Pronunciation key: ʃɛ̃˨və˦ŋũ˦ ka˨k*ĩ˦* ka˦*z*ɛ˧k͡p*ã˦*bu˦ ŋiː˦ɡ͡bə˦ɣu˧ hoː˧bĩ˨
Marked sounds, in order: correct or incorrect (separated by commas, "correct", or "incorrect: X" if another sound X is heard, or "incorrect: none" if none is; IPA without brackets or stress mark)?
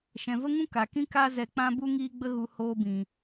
correct, correct, correct